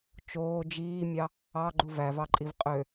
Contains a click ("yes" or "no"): yes